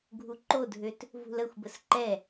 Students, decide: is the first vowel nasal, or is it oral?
oral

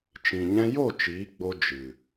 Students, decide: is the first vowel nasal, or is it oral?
nasal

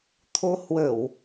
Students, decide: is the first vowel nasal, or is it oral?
oral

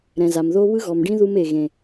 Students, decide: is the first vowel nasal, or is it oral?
nasal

